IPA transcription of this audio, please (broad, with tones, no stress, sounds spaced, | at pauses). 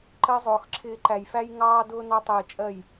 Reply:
ǃ ɜ˦ zˤ ʊː˧ x ǁʰ ɪː˦ ǃ æ˧ j f æ˦ j ŋ ɑː˦ d ʊː˦ n ɑ˦ tˤ ɪː˧ t͡ʃʼ ɜ˦˨ j